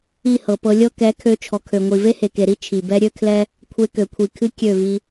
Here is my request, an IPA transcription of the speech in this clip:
i˦˨hɤ˨pɤ˧lʲɤ˦ kɛ˨˦kʰø˧ t͡ʃʰɔ˨kʰø˨ŋʷi˨ ve˦he˨ke˨ɾi˦ t͡ʃʰi˨bɛ˦ ɾʲø˦kʰlɛ˦ | kʷʰe˧kø˨kʷʰi˨kʰɨ˦ kʲø˦˨vi˧

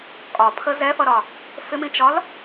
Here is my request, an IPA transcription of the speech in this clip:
kʼɒpʰə zɛfʌɾɒ | fɪmĩt͡ʃɒl

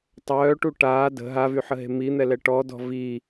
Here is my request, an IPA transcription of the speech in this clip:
tˤœːʈu ʈaː də̤ ɦavyħəɦe̤ min̪ɛlɛ ʈɔdɔ̤ vi

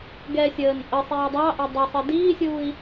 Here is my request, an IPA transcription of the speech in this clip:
ɡɛsʲəːn ʔəsˤiː dˤɑʔɛ dˤɑsˤə diːsʲuːi̯

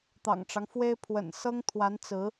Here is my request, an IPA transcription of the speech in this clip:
t̪ɑ̰˨˩ŋʈ͡ʂɑ˦ŋfwe˥ɪ̯ pʰwə̰˨˩nsɤ˥ŋ t̪ʰwa˧˥nt͡sɹ̩˧˥

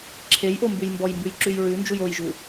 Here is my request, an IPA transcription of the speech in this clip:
ǁʰejʔombʉj mbɔjmbʉjǁʉj ɹʉnd͡ʒuj ojʒu

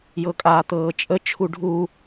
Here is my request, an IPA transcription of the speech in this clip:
jɤkʼaːt̪ɤːt͡ʃʼə t͡ʃʰuɖʱu

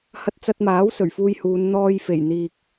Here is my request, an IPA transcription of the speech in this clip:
hɐ˧t̚t͡sɐ˧t̚maː˨˥w sɵ˨˩ɥfuː˧jhuː˨˧n n̪ɔː˧jfe˨˩j n̪iː˨k̚

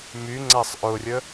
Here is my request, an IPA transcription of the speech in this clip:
myŋ͡ǀasˤ ʔʊrʲə

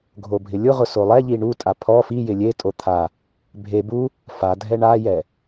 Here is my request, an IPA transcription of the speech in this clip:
ɡʱobʱɪlʲʊʁʊ solˠɛʎi ɳutʼa pʰɔ fijɪ lʲetʼo t̪ʰa | bʱe bu | fa dʱɛɳajɛ

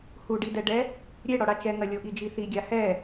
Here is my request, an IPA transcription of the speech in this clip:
huɖidɛɖɛ | ɾʲe ɽɔɽat͡ʃɛŋɐ lʲoʔid͡ʒiθi ɡʲahɛ

